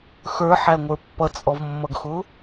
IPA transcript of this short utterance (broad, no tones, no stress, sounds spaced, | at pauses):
x ə˞ ħ æ ŋʷ ə˞ pː ʌ t͡sʼ ɔ v mː ʌ ɡ x ʊ